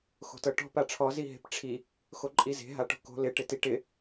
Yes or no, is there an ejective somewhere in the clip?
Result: yes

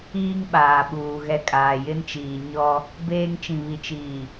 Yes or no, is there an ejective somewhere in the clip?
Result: yes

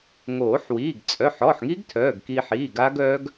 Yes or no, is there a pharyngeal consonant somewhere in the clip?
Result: yes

